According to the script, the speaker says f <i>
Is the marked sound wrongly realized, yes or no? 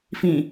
yes